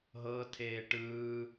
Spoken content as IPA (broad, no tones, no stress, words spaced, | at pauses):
ɦɤ tʰeːʈɯː